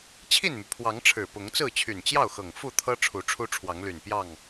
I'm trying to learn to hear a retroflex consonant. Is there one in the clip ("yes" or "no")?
yes